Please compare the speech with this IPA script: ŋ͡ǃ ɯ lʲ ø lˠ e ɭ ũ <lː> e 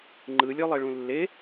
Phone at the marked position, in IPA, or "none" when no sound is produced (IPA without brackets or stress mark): lː